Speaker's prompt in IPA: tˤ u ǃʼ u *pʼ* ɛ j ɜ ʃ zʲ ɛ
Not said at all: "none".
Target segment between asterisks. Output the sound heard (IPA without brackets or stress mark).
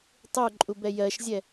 b